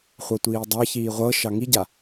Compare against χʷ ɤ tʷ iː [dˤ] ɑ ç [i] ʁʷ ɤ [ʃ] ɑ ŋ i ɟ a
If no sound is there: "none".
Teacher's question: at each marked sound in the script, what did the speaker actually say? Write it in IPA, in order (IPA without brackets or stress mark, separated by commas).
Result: dˤ, iː, ʃ